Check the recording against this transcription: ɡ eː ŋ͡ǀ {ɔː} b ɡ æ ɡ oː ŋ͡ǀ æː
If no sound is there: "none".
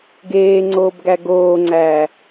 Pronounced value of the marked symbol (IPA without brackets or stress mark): oː